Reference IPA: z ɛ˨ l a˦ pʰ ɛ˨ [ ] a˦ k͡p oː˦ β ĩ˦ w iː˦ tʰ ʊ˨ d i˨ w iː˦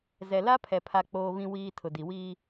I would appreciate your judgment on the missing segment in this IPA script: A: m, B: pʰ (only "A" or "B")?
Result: B